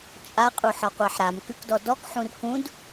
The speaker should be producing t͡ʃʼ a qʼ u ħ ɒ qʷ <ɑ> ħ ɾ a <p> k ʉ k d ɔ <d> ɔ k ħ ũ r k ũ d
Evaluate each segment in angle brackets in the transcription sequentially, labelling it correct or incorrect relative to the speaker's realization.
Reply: correct, incorrect, correct

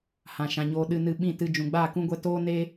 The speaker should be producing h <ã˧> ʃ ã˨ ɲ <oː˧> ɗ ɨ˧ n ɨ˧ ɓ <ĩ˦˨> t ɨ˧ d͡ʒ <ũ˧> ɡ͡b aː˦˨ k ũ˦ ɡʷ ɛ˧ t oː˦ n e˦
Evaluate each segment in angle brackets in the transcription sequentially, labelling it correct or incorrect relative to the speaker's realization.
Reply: incorrect, correct, correct, incorrect

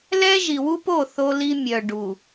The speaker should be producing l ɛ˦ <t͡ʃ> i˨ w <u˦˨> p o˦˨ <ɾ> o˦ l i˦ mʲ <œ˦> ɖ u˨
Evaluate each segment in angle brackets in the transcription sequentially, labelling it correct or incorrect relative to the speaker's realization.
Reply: incorrect, incorrect, incorrect, incorrect

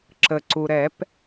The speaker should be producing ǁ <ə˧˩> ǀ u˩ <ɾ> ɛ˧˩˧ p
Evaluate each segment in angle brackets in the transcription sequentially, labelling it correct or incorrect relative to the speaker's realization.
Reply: incorrect, correct

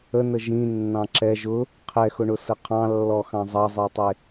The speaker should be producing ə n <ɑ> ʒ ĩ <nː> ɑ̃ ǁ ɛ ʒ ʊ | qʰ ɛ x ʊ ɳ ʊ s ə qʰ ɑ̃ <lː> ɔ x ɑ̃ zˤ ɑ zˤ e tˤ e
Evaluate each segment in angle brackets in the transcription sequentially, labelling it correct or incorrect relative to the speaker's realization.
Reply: incorrect, correct, correct

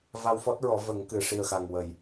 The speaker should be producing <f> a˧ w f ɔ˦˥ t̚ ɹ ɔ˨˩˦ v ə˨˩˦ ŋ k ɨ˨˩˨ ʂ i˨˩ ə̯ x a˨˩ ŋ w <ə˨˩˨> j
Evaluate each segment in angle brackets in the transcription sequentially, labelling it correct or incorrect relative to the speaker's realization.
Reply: incorrect, correct

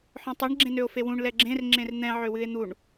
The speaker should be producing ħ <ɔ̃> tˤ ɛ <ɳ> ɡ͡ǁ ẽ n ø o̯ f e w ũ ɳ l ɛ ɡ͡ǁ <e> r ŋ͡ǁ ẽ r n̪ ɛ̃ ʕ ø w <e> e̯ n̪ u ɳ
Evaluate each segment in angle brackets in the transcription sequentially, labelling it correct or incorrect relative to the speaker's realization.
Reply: correct, correct, incorrect, incorrect

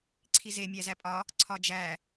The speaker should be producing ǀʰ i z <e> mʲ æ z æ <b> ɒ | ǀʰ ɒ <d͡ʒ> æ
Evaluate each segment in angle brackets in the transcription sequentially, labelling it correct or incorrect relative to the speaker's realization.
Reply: correct, incorrect, correct

